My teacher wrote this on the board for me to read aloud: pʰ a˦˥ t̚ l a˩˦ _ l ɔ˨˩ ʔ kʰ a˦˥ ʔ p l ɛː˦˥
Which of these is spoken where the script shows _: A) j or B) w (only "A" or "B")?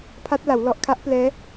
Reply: B